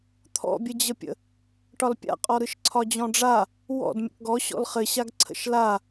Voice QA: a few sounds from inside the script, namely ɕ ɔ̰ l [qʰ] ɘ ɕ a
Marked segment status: incorrect: χ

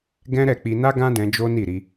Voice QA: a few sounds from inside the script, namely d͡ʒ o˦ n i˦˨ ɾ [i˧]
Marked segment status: correct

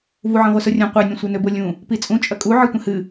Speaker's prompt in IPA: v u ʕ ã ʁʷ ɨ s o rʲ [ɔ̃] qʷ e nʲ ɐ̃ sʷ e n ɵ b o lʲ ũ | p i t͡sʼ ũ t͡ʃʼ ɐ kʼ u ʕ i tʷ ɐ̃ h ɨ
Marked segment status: incorrect: õ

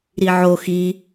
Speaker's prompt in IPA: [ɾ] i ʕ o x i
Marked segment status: correct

